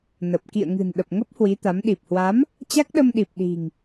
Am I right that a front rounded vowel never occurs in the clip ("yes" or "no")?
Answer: yes